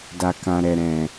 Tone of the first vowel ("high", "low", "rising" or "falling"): low